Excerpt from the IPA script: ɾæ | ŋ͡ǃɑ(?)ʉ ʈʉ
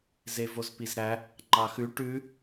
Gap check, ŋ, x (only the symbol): x